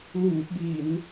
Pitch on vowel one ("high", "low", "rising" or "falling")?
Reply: low